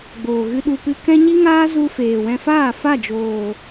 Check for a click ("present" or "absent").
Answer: absent